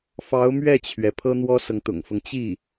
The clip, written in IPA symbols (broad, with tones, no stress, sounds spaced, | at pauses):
f ɑ˧˥ ʊ̯ m ɥ ɛ˥˩ t͡ɕʰ ɥ ɛ˩ pʰ ɤ˥ n̪ w ɔ˥ s ɤ˨ ŋ t̪ ʊ̰˨˩ ŋ f ɤ˦ ŋ t͡ɕ i˥˩